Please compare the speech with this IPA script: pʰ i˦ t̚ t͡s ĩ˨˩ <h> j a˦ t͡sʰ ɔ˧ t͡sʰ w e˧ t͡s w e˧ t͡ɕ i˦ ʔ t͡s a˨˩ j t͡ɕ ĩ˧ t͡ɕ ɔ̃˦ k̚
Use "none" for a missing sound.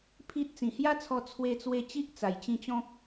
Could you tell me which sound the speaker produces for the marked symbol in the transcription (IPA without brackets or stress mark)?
h